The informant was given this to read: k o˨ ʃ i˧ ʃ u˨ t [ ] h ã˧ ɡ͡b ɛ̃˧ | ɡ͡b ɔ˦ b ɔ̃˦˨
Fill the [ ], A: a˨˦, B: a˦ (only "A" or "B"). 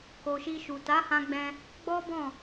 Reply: A